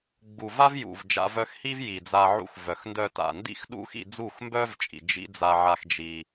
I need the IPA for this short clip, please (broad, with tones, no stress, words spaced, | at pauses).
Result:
ɡ͡bu˨va˦vjṵ˨vd͡ʒa̰˧ vœ˧xhi˦v ji˨d͡za˧ʕṵ˧x vœ˨xndœ˧ta̰˨ ndḭ˦xɗṵ˦xḭ˧ d͡zu˦˨xmbœ˦vt͡ʃʼḭ˨ d͡ʒḭ˦ d͡za˧ʕa˧x d͡ʒi˧